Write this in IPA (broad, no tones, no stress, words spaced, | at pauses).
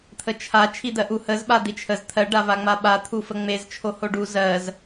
t̪ʰət͡ʃʰa t͡ʃʰid̪ɜʔu həz ɓad̪it͡ʃʰəz t̪ʰɜ ɖavaŋ͡maɓa t̪ʰufəŋ͡mez t͡ʃʰohoɖu zɜz